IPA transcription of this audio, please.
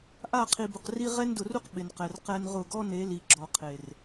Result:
ʔa˦˨qʰi˨bʊ˨qri˦ ʁɛ˦n dʊ˨ru˦q ɓɪ˨nqɛ˨r qɛ˦nʁʊ˦˨ ɡɔ˦ne˨˦ li˨ɡ͡ǁɔ˨ qʰe˨r

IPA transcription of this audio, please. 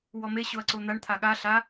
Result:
wɔme ɕoɐ̯ǀon̪aɳ t̪ʰaɠa ɬa

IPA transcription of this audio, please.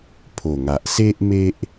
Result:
pʰo˨˩ŋa˨ʔse˦ʔ me˦ʔ

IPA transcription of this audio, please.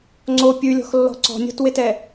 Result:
ŋ͡ǀo pʲʉlʲɔ̤xlːɔ̤ ǀɔ̤nʲɔ̤twetɛ

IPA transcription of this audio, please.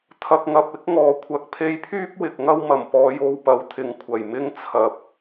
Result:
t̪ʰɐ˨k̚ŋɐ˨p̚ɪ˨˥k̚ŋɔː˨˩ kʷʰɐ˨k̚pʰe˧jpʰyː˥p̚ wɪ˨k̚ŋɐ˧w mɐ˨˩mpɔː˨˧jo˧wpɐ˨w t̪ʰɪ˨ŋ kʷʰɐ˨˩jmɪ˥ŋ t͡sʰɐ˨p̚

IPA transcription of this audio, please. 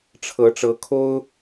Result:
ʈ͡ʂʰɤ˨˦ʈ͡ʂɤ˨˦kʰo˦ʊ̯

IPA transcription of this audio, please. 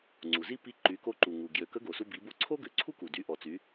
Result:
ŋ͡ǀu˩zi˥ pi˧˥ ǃy˩˧ko˧ǃu˩ŋu˩ ɡjø˩˧kə˧˥ɡo˩su˧ bi˩˧bo˧ ǀʰo˥ɡø˩˧ǀʰu˥ku˩ dy˩˧ʔɔ˩ t͡sy˩˧

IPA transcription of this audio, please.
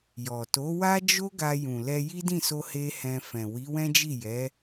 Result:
jɔ˨ to˨˦wa˦d͡ʒo˦ ɡa˧jũ˨lɛ˧ ji˦dĩ˦˨so˧ he˦hɛ̃˧fɛ̃˨ wi˨˦wɛ̃˦d͡ʒi˦˨ jɛ˨˦

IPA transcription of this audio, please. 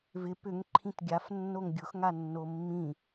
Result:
vɪ pʏŋ ǃʰĩtɡʲaf nːoŋɡʲʊx ŋanːomːĩ

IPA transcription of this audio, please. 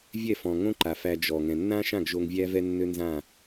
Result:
vʲɛ˥˩fɔ̃˩ŋõ˥ ǃa˩fæ˧ d͡ʒɔ˩ ŋɛ̃˩nːã˥ʃã˥˩ɡ ʒo˧ŋvʲæ˥ vɛ˥nːø˥nzã˥˩

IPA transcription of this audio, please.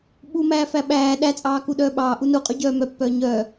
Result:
ɓumæː fæɓæː ɗæt͡sʼɑːku ɗœːɓɑː ʔunuqʼy ɟœːmœpːœː ɲœ

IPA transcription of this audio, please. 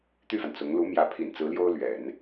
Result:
t̪y˥˩fa˩n t͡sʊ˧˥ŋ lu˧˥ mjä˧˥pʰḭ˨˩n t͡sɹ̩˧˥ljo˥ʊ̯lɥɛ̰˨˩˦n

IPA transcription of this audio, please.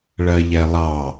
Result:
ɭɜʎɛlˠɑ

